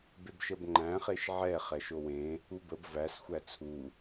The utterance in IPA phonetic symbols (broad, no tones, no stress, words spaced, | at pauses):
bebʃəbŋ͡ǃæ̃ χeʃʕɛ χɛʃowẽ | ubəb væs xʷæt͡sʰu